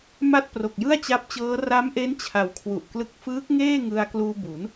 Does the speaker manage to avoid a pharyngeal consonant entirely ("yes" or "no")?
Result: yes